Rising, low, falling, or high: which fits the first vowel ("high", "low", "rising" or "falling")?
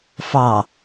low